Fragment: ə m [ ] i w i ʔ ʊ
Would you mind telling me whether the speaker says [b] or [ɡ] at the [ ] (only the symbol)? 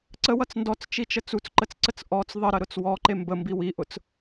b